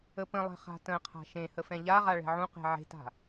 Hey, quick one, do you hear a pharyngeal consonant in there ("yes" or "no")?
yes